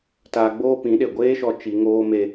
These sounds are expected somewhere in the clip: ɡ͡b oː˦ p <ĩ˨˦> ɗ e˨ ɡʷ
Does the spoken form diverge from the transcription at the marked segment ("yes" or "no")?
no